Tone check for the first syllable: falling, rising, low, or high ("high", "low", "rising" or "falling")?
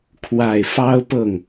low